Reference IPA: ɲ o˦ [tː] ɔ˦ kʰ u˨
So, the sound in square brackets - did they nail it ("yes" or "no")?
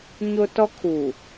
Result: no